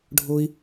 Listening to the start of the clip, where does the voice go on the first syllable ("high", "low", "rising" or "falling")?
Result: high